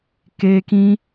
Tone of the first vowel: high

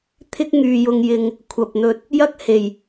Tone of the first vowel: high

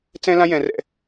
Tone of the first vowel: high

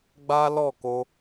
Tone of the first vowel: high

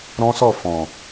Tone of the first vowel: high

